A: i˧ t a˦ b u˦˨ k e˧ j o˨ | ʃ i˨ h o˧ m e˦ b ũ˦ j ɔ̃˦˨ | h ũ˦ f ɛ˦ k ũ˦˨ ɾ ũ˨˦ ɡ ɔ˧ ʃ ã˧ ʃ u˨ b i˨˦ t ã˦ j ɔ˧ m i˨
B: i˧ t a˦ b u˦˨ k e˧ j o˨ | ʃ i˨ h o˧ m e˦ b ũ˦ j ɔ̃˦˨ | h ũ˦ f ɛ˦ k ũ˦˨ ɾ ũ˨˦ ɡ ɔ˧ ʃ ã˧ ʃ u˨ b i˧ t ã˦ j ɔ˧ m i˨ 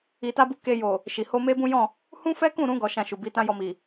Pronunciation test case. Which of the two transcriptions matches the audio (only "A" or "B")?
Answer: A